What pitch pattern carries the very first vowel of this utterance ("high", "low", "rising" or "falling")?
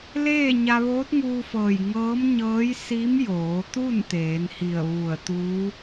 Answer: falling